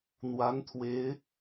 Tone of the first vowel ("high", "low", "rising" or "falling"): rising